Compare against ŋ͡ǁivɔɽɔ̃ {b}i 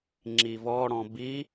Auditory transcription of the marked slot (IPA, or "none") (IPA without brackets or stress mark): b